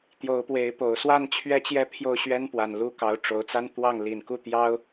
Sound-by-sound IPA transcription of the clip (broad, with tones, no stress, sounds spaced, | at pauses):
t̪ j o˧˥ ʊ̯ p w e˧˥ ɪ̯ p o˨˩ ʊ̯ s w a˥˩ n t͡ɕʰ ɥ ɛ˥ t͡ɕ j ɛ˥ pʰ j o˥˩ ʊ̯ ɕ ɥ ɛ˥ n p w a˨˩ n l u˧˥ k ɑ˧˥ ʊ̯ ʈ͡ʂ o˧˥ ʊ̯ t͡s a˥ n t̪ w ɑ˥˩ ŋ l i˨˩ n k u˥˩ t̪ j ɑ˥ ʊ̯